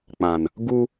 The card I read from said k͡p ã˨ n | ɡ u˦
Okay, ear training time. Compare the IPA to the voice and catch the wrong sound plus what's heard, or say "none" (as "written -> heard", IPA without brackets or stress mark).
none